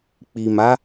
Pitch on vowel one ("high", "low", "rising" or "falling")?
low